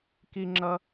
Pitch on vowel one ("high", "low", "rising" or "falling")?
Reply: high